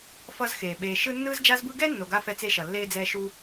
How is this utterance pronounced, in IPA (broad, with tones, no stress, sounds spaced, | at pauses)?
f ʌ˦ z x eː˩ ɓ eː˨ ʃ ɯ˥ nː ɯː˦ z d͡ʒ a˦ z b ɯ˦ ɡ ɛ˥ nː o˨ ɡ a˥ f ɛ˦ t͡s e˥ ʃ ʌ˩ lː eː˥ d͡z ɛː˦ ʃ u˦